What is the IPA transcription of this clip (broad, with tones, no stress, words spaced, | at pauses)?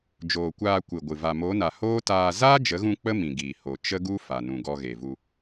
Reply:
d͡ʒoː˨kʷaː˧ kʷɨ˨ɡʷɨ˨ va˨mo˨˦na˨ hoː˦taː˧ zaː˦d͡ʒə˨˦ɣũ˧ k͡pə˦mĩ˨ɡiː˨ ho˨ t͡ʃə˦ɡu˦ fa˨nũ˨ɡɔ˧ ɣe˨vu˧